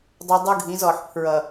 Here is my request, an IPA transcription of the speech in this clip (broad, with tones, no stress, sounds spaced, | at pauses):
dˤ a˦ dˤ u˦ ɡʱ ĩ˨˦ z ɔ˨ ħ pʰ ɹ ʌ˨